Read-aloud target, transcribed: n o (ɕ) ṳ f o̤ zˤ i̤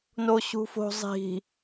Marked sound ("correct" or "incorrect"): correct